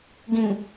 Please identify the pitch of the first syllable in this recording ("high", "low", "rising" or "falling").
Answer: low